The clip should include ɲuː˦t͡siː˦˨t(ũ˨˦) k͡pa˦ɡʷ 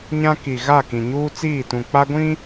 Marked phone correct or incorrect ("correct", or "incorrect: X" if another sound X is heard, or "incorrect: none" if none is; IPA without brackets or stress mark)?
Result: incorrect: ũ˨